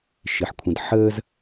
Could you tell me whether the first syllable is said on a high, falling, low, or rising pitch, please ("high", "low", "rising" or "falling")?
low